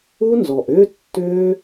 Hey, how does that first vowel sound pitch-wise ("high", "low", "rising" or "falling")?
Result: high